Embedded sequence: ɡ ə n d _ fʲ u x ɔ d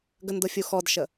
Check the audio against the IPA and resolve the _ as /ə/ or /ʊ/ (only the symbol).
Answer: ʊ